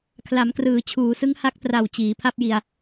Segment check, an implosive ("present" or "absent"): absent